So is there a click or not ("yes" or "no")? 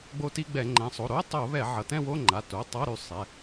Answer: yes